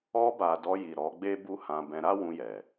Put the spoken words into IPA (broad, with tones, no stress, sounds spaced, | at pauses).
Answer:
ɔ˧ b a˨ d ɔ˧ j i˨ ɾ ɔ˨˦ ɡ͡b e˦ b u˦ h ã˧ b ɛ̃˧ ɾ a˦ w ũ˧ j ɛ˨